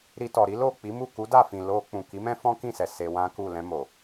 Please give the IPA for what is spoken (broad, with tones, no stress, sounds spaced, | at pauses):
ɾ i˧ t ɔ˨ ɾ i˨˦ l o˦˨ k͡p i˨˦ m u˦˨ k u˨˦ d a˦˨ f ĩ˨ l o˧ k͡p ũ˨ k i˨˦ m ɛ̃˦ f ɔ̃˦ k ĩ˦˨ s ɛ˨ s e˧ w ã˦ k u˦˨ l ɛ̃˧ m o˨